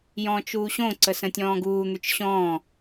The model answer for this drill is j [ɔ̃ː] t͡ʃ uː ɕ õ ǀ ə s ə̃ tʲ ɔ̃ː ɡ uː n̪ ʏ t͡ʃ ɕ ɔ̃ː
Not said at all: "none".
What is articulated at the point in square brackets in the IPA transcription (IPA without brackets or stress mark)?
ɔ̃ː